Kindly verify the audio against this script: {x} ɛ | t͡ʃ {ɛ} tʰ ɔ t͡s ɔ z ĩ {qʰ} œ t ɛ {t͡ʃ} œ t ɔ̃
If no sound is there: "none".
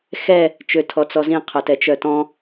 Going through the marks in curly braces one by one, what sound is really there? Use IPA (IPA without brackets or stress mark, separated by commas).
x, ø, qʰ, t͡ʃ